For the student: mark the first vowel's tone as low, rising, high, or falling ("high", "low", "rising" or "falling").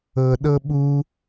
low